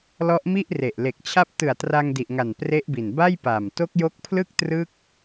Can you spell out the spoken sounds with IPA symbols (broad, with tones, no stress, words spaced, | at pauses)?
lɔ˦˥ʔmi˥˩ʔre˨˩ʔ le˨˩k̚t͡ɕʰa˦˥p̚ tɯ˨˩a̯tra˧ŋ di˨˩ʔŋa˨˩n pre˦˥ʔbi˨˩n ba˥˩jpa˨˩m to˦˥k̚jo˦˥k̚pʰlɯ˥˩k̚ trɯ˦˥k̚